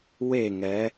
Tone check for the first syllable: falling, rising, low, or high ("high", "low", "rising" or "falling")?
falling